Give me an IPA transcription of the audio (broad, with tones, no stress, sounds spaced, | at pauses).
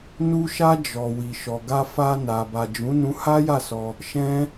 n u˧ ʃ a˧ d͡ʒ ɔ˨ w i˨ ʃ ɔ˨ ɡ a˧ f a˧ n a˨ b a˨ d͡ʒ ũ˨˦ n ũ˧ h a˦ j a˦˨ s ɔ˧ | ʃ ɛ̃˦